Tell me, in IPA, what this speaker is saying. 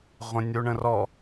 ʁʷə̃nʲuɳə̃rɔ

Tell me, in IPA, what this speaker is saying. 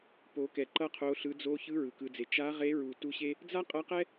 po˩˧kɛ˩ ǃʌ˧qʰo˩˧ɬɯ˩˧ d͡zo˧çɯ˧˥ ɹɯ˩kɯ˩˧d͡ze˩˧ t͡ʃa˧˥ʁe˧˥ɹu˩ tu˧˥ɕe˥ | d͡za˥qʼʌ˧˥qɛ˥

